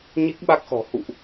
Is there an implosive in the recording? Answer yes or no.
yes